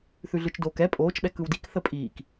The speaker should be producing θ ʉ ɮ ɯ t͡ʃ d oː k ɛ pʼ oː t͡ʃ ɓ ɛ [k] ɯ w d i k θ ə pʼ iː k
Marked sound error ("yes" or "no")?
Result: no